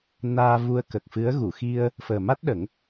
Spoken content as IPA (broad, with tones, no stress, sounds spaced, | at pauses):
n aː˧ v u˧ ə̯ k ə˨˩ k̚ f ɨ˧˥ ə̯ ɣ u˨˩˨ x i˧ ə̯ | f əː˨˩ m a˦˥ t̚ ɗ ə˨˩˦ ŋ